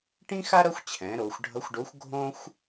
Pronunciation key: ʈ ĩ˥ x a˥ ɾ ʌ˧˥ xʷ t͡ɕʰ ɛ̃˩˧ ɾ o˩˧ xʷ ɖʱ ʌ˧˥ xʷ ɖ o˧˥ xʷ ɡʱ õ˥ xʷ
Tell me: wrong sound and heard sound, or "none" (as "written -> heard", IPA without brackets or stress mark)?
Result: none